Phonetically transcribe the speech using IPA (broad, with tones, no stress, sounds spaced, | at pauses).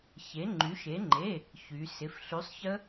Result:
ç e˩˧ ŋ͡ǃ y˩˧ ʃ e˩˧ ŋ͡ǃ e˩˧˩ | ç y˩˧ s ɪ˩˧˩ f ɬ y˨˥ sˤ ç ə˦˥